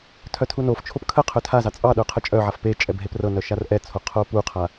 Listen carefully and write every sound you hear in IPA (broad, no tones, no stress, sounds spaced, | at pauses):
tʰ œ tʰ u n o f t͡ʃʰ o p kʰ ə qʰ œ tʰ a z ɑ t͡sʼ ɑ ɗ œ qʰ ə t͡ʃʼ œ ʕ a f p e t͡ʃʼ ɛ b ɦ e p r ɤ n œ ʃ a r ʔ ɛ t͡sʰ o qʰ o p u qʰ a